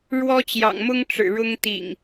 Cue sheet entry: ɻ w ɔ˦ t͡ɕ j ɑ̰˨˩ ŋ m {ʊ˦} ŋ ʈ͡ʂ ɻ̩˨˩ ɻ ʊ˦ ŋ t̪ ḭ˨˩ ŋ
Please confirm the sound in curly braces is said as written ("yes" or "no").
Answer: yes